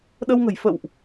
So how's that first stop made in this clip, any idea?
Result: implosive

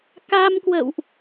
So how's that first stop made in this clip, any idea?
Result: plain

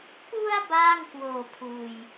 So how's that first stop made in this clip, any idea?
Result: plain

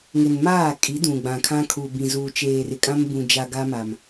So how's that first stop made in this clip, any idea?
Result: ejective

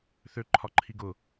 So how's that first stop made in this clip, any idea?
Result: click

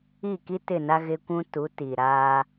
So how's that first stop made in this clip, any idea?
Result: plain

